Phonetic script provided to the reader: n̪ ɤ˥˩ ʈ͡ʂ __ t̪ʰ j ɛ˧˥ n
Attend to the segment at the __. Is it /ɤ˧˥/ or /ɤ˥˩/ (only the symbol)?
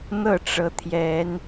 ɤ˧˥